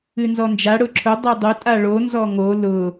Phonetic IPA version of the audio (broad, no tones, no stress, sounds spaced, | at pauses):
ɨ n z ɔ n d͡ʒ a ɽ ʊ ǁʰ ʊ dˤ o dˤ ʊ tʼ a ɭ o n z ɔ ŋ o l ʊ